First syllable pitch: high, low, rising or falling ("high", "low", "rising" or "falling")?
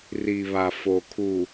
low